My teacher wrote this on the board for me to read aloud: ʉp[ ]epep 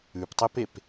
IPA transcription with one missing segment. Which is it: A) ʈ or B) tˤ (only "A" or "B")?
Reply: B